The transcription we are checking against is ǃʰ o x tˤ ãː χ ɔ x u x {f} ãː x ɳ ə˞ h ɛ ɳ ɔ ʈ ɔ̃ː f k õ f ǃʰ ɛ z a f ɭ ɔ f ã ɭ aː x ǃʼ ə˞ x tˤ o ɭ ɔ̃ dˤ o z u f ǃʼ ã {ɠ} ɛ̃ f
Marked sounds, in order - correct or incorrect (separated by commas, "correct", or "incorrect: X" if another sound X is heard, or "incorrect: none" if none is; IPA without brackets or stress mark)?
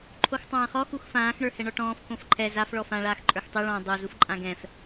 correct, incorrect: ɡ